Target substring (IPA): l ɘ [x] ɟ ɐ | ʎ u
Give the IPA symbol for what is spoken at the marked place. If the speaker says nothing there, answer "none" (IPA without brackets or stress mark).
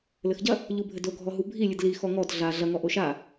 x